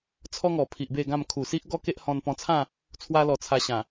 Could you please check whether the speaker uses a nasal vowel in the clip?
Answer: yes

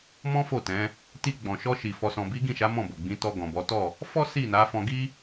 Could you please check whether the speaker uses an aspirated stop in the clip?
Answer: no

